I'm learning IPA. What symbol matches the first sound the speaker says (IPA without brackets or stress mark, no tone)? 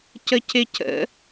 c